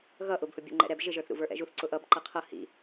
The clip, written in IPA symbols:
ɣ ʌ ʔ ʊ b h ʊ bʲ ɛ̰ ŋ͡ǃ ɛ̰ ɾ ɛ b ʒ ɪ ʒ ə˞ θ ɾ ṵ v ə˞ ʔ ɛ̰ ʒ u θ ǀ ʊ ʔ ʌ b ǃ ʌ qʰ ʌ h ḭ

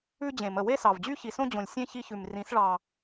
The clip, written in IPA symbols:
ʉ˦ d͡ʑ ẽ˨ m ə˨ w e˦ s ɑ˨ v d͡ʑ y˦ ç i˨ s õ˦ d͡ʑ õ˨ lʲ sʲ ẽ˦ ç i˦ ç ʉ˨ m r ĩ˨˦ s ɭ ɑ˨

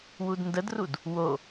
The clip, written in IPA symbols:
w u d n d ə d r u d | w o

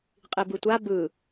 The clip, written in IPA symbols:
qʼ i b ɯ tʷ a b ɯ

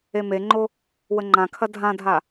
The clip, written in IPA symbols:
e m e ŋ͡ǃ o | w ə ŋ͡ǃ ã kʰ ɐ dʱ ã dʱ a

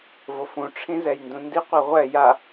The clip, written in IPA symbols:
v o f ũ ʈ͡ʂʰ ĩ z ɛ j n d ũ n d i qʷ i ʁʷ ɛ j a

